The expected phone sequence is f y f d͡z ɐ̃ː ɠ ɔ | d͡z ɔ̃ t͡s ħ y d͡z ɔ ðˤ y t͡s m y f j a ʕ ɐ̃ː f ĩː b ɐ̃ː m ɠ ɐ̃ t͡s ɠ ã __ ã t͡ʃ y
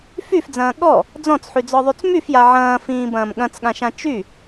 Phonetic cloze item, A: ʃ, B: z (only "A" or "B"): A